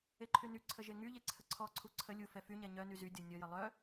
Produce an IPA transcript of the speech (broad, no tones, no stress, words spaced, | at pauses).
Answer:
eǃʰynyǀʰə ʒeŋyʎe ǀʰəǀʰɔǀʰu ǀʰə lʲufɛ fyɲɛ ɲœny zy dʲɔnʲɔjə lˠœ